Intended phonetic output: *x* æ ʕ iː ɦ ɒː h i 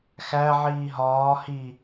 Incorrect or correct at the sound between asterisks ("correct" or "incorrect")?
correct